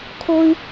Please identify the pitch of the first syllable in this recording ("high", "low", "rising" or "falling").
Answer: high